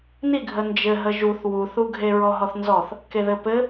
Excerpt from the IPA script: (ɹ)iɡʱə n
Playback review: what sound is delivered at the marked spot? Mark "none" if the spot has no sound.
n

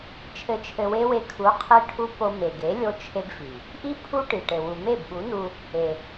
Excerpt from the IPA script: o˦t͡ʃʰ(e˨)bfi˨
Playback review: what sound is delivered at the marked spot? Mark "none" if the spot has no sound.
e˦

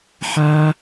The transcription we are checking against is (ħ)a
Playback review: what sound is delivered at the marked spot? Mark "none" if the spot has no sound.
ħ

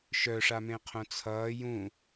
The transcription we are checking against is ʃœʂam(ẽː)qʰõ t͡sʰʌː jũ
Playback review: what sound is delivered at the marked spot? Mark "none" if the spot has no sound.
ẽ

